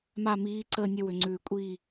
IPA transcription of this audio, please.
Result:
m a˥˨ m iː˧˥ ǀ əː˥˨ nʲ ə˥˨ w ʏ˨˩ ŋ͡ǀ ʉː˨˩ kʷʼ iː˥˨

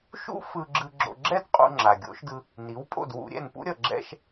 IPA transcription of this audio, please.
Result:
ʃ ṵ˥ f ɯ˧ ɡ͡ǁ ɯ˧ ɡ͡ǁ o̰˧ ɡ͡ǁ ɛ˥ d qʼ ṵ˧ ŋ͡ǁ a˩ ɡʲ o̰˩˥ ʃ d ɯ˧ | n i˩˥ w pʼ o̰˥˩ d w ṵ˧ ɾʲ ɛ̰˥˩ n p ṵ˥ ɾʲ ʌ˩ ɡ͡ǁ ɛ̰˧ ʃ

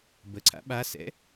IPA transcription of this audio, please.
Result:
b ə ǀʰ a̰ ɓ a s ɛ̰

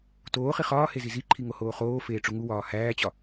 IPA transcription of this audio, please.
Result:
t oː χ i χ ɒː h e z i z i ǃʰ i ŋ o h oː χ oː f eː ʈ͡ʂ u ŋ u w ɒː h æː t͡ɕ ɒ

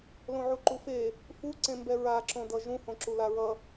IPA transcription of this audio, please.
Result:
l õ ʕ u ǃ u f e | f u ǀ ẽ m b ɛ ɹ a ǁ õ d ʌ ʒ ũ h õ ǁ u l a ɹ ʌ

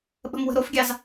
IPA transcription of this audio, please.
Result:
ɓ ə̤ m w ə̤ ɾ o f ɡʲ ɑ z

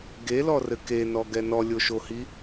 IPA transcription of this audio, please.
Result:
ɡ e l ɔ r ɘ k e n ɔ ɡ ɛ n ɔ lʲ o ʃ o h i

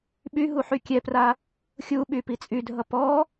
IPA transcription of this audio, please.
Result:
ɓ y ɦ u ħ y kʲ ɛ p r a | xʲ u ɓ y p i t͡sʼ y dʱ ʌ p ɔ

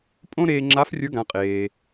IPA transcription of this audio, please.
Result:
pʼ õ˥ ɾ eː˧ ŋ͡ǁ a˧˥ f rʲ ə˞˧˥ ɡ ã˩˧ qʼ eː˩

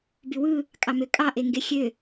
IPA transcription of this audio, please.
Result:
b y w ɯ | kʼ ɑ m ø kʼ ɑ ʔ e ŋ ɡ e xʲ ø

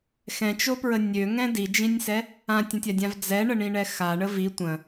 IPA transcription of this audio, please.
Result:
x ɛ̃ t͡ʃ o p ɹ ə nʲ ø ŋ ɛ̃ d i d͡ʒ ĩ nʲ s ɛ | ã tʲ ə̃ tʲ a dʲ ã v d͡z ɛ ɳ ə ɳ ĩ ɳ ɛ x a ɳ ə v i tʷ ə̃

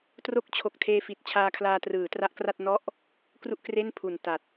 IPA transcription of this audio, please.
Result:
t r o˦˥ k̚ t͡ɕʰ o˨˩ k̚ tʰ eː˧ f i˨˩ t̚ t͡ɕʰ aː˧ kʰ l aː˧ t r ɯː˩˦ t r a˦˥ ʔ k r a˥˩ t̚ n ɔ˥˩ ʔ | k r u˥˩ ʔ k r e˥˩ n pʰ u˨˩ n t a˨˩ t̚

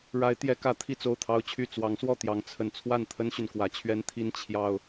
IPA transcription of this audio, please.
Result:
ɻ a˨˦ ɪ̯ t̪ j ɛ˨˦ k ä˨˦ t̪ʰ i˥˨ t͡s o˥˨ ʊ̯ t̪ʰ ɑ˦ ʊ̯ t͡ɕʰ y˥˨ t͡s w ɑ˨˦ ŋ s w ɔ˥˨ t̪ j ɑ˨˦ ŋ t͡sʰ ə˨˩ n t͡sʰ w a˥˨ n t̪ʰ ə˦ n ɕ y˨ n k w ä˨˦ t͡ɕʰ ɥ ɛ˦ n t̪ʰ i˦ n t͡ɕʰ j ɑ˨˩ ʊ̯

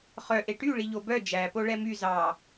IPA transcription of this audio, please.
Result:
χ œ ʔ e ʈ y ɭ i ʎ o b œ d͡ʒ æ p o ɭ ɛ m y z ɑ

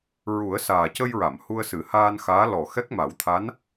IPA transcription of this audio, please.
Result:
ɹ u˨˩˦ ə̯ s aː˨˩ c ə˧ j ɹ a˨˩˨ m h u˧ ə̯ s ɨ˨˩˦ h aː˧ n x aː˧˥ l ɔ˨˩ x ɛ˦˥ k̚ m a˨˩˦ w t̪ʰ a˧˥ n

